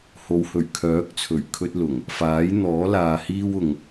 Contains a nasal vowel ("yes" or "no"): no